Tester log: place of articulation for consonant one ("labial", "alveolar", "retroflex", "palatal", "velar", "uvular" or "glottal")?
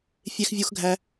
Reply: labial